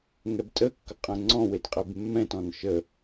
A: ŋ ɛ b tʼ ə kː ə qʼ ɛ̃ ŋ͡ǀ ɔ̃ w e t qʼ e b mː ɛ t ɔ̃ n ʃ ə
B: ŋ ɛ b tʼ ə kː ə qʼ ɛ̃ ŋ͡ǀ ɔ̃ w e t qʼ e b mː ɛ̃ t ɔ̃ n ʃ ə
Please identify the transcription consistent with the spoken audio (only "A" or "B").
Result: B